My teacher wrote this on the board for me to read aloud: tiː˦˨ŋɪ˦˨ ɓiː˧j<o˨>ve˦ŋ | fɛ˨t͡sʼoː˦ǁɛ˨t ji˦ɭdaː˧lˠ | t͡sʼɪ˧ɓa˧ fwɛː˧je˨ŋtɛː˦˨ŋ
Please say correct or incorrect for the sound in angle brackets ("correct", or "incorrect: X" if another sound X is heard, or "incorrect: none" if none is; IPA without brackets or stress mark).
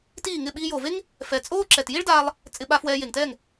correct